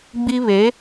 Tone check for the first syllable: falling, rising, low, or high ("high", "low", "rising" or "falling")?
high